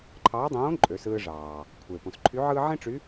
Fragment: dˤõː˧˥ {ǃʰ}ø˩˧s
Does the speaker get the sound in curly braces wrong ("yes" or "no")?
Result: yes